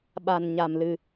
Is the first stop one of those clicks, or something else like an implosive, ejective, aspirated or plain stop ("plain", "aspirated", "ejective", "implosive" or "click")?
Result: implosive